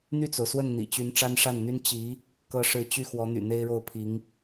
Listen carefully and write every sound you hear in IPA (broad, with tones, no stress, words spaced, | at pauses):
n̪y˥˩t͡so˩ʊ̯swə˥˩n n̪ḭ˨˩t͡ɕy˧˥n ʈ͡ʂa˥nʂa˥˩nn̪y˥n t͡ɕi˧˥ | kɤ˥ʂɻ̩˥˧ t͡ɕy˥˩xwɔ˧˥ n̪y̰˨˩n̪e˥ɪ̯ɻo˥˩ʊ̯ pʰi˧˥ŋ